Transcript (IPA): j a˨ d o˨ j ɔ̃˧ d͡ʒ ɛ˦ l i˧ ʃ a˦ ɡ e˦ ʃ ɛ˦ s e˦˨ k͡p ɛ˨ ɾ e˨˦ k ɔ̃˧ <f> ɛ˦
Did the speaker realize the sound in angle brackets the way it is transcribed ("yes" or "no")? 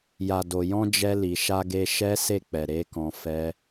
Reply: yes